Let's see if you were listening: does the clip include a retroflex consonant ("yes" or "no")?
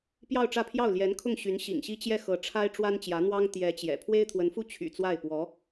yes